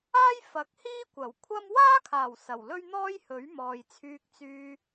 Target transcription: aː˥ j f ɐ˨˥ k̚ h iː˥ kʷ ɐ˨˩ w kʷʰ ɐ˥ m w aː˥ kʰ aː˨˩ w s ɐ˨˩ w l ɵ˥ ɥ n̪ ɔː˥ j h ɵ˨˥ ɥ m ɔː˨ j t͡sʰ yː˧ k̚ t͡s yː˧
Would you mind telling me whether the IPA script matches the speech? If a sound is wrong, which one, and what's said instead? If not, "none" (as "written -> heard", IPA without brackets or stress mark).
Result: none